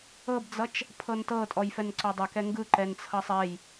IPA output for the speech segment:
ɤ b d͡z ʌ t͡ʃ | pʰ ɤ n t ɤ tʼ ɔ j f ɛ n ǀ ɔ dˤ ʌ k ɛ ŋ ɡ ɯ ǃ ɛ n t͡sʰ ʌ sˤ ɛ j

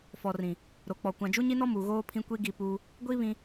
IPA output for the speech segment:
f ɔ˨ r ĩ˨ | ɾ o˨ k͡p ɔ˨ kʷ ã˨ d͡ʒ u˦ ɲ i˦ n ɔ˦ m u˨ ɣ oː˦ pʰ ĩ˦ kʷ i˦ ɡ i˦˨ p uː˦ | ɡʷ i˦ β ĩ˦

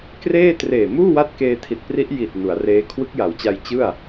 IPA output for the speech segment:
k r eː˥˩ t r eː˨˩ m uː˥˩ w a˦˥ t̚ k eː˧ tʰ i˨˩ t̚ p r i˦˥ ʔ j i˨˩ t̚ n u˩˦ a̯ r eː˦˥ kʰ w ɯ˦˥ k̚ j a˩˦ w t͡ɕ a˧ j t͡ɕ ɯ˥˩ a̯

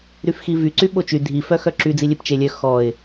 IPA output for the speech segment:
ɾ y f x i v y ǀ y ɓ o t͡ʃ y dʱ i f œ x œ ǁ y d͡z i lʲ e p t͡ʃ e lʲ œ x ɔ ɪ̯

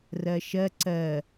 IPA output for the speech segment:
r ɜ ʃ ɜ ǀ ɜ

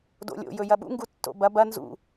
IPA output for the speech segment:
d o̰ lʲ o̰ j ɵ j ɐ ɓ ṵ ŋ ɡ u tː o̰ b ɐ b ɐ n z ṵ

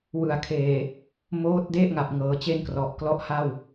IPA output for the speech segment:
w ɯ˨˩ a̯ kʰ eː˨˩ | m oː˦˥ t̚ d e˥˩ ʔ ŋ a˨˩ p̚ ŋ ɤː˩˦ t͡ɕ e˥˩ n k r ɔ˨˩ ʔ k l ɔ˦˥ ʔ h a˥˩ w

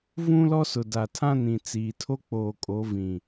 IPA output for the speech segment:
v ũ˦ l ɔ˦ s ʊ˨ d a˨ tʰ ã˦ n ĩ˨ t͡s iː˨ tʰ o˦ k͡p oː˨ kʼ o˨˦ v ĩ˨

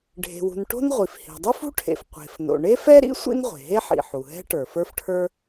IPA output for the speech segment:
ɖʱ e̤˩ w ṳ˩ n ʈ o̤˥ n ʁʷ i˩ f h i̤˩ dˤ u˥ f ṳ˥ ʈʰ ḛ˩ f qʷ e̤˩ f n o̰˩ ɳ e˥ f ɛ˥ ɾ ḭ˥ sʷ ḭ˥ n ʁʷ e̤˩ ɦ e˥ ħ ḭ˩ ħ u˩ ɦ ɛ̤˥ ʈ ə˞˩ f ə˞˥ f ʈʰ ə˞˥

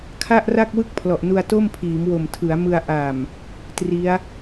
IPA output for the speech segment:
kʰ a˥˩ ʔ r a˥˩ k̚ w ɯ˥˩ k̚ pʰ l ɔ˨˩ ʔ n u˧ a̯ t o˥˩ m pʰ iː˩˦ m w o˨˩ m tʰ ɯ˩˦ a̯ m ɯ˧ a̯ ʔ a˨˩ m | t r i˦˥ a̯

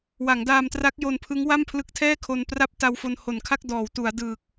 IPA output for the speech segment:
w a˩˦ ŋ d aː˧ m t r a˦˥ k̚ j o˧ n pʰ ɯ˦˥ ŋ w a˥˩ m pʰ l ɯ˦˥ k̚ tʰ ɛː˥˩ kʰ o˧ n p r a˥˩ p̚ t a˧ w f o˧ n h o˨˩ n kʰ a˥˩ k̚ d ɔː˩˦ w t u˩˦ a̯ d ɯː˨˩ k̚

